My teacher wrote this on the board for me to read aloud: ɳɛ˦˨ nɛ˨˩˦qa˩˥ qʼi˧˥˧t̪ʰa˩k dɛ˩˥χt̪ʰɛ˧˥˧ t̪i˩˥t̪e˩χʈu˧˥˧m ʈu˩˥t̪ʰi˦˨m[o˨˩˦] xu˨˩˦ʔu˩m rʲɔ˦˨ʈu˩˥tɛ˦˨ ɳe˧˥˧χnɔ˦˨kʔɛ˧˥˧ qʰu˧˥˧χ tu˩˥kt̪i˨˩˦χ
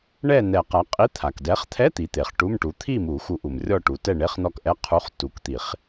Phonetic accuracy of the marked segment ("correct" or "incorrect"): incorrect